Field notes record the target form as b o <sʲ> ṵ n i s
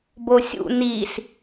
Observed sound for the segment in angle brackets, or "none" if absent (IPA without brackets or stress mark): sʲ